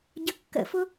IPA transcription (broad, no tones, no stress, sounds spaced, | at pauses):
ɟ ə kː ə̰ f ʊ